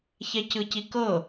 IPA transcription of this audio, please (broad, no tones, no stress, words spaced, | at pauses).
çɛcɯcikɤ